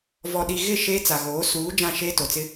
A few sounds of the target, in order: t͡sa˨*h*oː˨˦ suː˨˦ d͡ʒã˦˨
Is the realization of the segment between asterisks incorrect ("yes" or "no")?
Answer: yes